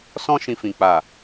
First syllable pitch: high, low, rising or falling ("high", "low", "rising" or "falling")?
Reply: high